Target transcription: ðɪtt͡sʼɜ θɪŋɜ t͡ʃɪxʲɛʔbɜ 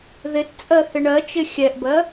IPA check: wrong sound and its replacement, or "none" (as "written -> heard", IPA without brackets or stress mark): ŋ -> ɳ